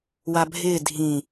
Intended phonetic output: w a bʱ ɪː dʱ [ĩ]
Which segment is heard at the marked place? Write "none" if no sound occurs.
ĩ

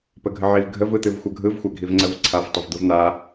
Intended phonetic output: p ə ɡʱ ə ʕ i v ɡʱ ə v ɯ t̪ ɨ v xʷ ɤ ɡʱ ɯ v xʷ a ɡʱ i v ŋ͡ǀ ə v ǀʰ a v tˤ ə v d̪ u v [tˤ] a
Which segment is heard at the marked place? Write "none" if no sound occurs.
n̪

